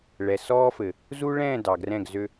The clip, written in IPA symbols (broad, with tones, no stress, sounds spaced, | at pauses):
ɭ ɛ˨ s ɔː˦ f ɘ˨ | z u˦ ɭ ɛ̃ː˦˨ d ɑ˨ ɡ r ɛ̃˦˨ ɡ z ø˦